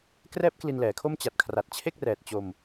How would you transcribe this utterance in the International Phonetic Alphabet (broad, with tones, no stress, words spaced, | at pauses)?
krɛː˥˩p̚kli˧nlɛː˩˦kʰo˥˩m t͡ɕa˨˩t̚kʰra˨˩t̚t͡ɕʰe˥˩k̚ rɛː˨˩t̚t͡ɕo˧m